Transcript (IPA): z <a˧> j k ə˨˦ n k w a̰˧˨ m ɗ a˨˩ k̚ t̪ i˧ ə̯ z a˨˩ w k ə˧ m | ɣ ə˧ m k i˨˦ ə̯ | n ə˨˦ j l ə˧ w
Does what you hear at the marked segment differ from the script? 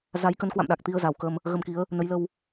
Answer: yes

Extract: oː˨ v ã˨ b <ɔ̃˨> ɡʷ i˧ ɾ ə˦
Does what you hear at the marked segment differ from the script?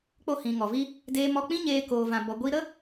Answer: yes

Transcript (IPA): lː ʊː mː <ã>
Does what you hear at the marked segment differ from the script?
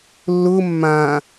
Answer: yes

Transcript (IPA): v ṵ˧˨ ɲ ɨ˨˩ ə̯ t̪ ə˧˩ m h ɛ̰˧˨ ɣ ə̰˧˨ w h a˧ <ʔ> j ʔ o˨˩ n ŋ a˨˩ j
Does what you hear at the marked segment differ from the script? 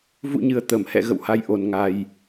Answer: yes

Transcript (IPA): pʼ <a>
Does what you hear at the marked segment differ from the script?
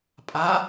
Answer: no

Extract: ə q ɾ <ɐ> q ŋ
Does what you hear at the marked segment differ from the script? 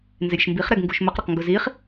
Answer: no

